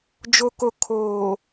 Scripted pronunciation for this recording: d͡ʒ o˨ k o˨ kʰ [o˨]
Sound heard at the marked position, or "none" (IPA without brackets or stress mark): oː˨